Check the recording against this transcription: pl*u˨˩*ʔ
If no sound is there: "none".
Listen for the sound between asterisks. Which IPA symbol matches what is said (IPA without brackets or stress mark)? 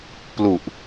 u˨˩